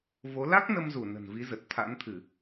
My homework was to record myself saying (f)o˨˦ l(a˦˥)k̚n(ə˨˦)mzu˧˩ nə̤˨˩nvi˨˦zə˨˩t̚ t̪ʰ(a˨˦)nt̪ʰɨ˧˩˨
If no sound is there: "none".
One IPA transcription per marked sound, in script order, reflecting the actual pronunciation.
v, a˦˥, ə˧, a̰˧˥

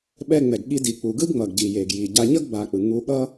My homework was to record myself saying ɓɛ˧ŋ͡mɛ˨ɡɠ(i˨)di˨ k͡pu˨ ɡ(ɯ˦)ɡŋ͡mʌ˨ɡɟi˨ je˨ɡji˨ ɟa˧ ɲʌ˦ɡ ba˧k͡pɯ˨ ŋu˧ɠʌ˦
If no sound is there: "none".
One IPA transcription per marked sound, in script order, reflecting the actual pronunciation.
i˧, ɯ˦

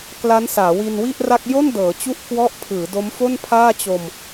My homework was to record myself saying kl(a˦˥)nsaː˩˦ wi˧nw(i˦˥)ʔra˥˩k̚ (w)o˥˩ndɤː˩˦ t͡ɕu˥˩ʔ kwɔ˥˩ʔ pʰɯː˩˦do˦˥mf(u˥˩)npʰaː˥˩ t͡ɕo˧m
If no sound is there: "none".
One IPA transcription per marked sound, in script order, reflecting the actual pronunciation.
a˦˥, i˥˩, j, o˥˩

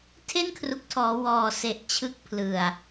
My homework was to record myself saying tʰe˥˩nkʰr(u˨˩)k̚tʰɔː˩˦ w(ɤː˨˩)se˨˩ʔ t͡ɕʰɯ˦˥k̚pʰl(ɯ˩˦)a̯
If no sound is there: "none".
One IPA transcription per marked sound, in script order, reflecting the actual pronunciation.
u˨˩, ɔː˨˩, ɯ˨˩

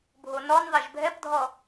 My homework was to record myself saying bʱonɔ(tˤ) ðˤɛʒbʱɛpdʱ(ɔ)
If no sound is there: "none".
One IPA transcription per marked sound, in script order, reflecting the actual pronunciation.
n, ɔ

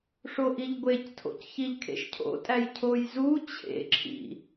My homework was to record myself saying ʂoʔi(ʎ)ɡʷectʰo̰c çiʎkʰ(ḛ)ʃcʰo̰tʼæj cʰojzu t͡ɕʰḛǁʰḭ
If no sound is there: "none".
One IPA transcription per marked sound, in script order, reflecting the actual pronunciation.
ʎ, ḛ

